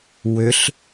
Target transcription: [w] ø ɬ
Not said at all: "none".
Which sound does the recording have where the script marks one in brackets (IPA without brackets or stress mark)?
w